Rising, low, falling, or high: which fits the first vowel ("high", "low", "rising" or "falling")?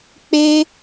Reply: high